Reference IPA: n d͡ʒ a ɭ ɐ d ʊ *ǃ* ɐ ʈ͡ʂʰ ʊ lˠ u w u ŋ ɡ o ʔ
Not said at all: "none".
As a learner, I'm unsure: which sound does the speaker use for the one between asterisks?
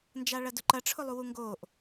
ǃ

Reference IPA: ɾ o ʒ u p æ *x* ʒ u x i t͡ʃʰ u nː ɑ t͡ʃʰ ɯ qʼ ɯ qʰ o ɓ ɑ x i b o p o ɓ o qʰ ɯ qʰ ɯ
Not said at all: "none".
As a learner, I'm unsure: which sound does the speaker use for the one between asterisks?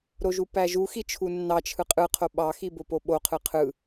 none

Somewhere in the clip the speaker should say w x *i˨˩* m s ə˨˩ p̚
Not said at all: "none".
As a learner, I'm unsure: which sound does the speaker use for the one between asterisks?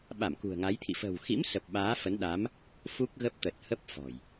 ḭ˧˥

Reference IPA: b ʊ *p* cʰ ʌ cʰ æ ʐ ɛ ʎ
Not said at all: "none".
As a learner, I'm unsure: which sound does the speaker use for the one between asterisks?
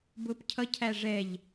p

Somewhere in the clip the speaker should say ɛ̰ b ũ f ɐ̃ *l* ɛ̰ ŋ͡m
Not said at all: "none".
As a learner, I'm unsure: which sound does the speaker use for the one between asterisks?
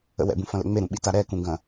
l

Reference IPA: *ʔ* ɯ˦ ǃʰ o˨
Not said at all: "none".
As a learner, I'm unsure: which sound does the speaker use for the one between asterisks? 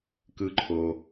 k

